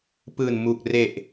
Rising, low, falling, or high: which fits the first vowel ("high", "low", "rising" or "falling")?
low